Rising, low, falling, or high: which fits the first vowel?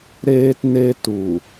high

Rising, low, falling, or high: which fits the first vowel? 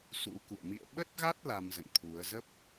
rising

